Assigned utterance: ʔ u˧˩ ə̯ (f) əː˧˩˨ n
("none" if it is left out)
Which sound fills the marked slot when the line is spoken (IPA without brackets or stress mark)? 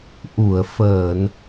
f